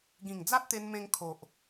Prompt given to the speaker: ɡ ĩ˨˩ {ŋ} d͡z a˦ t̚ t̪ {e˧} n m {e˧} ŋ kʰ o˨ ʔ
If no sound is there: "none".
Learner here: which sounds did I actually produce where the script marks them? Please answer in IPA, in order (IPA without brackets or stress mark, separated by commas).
ŋ, e˧, ẽ˧